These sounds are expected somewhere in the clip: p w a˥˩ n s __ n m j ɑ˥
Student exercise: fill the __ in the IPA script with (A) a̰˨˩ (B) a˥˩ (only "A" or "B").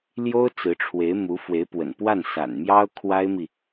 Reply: A